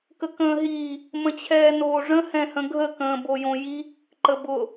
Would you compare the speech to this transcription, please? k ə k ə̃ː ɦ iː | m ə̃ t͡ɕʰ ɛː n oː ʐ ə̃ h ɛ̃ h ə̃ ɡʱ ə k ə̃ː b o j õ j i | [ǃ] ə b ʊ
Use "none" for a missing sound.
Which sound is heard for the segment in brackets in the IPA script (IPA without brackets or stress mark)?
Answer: ǃ